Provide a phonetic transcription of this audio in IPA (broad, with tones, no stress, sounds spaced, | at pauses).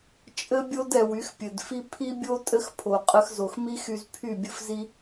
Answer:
t͡ʃʼ ɘ˦ bʲ o˦ d ɛ˨ w y˨˦ x pʲ ɘ˨ d f i˦ pʰ i˦ bʲ o˦ tʼ ɘ˦ x pʰ o˨ qʼ ɘ˧ x z o˨ x m i˦ x y˧ z pʰ y˦˨ bʲ ɘ˦ f z i˦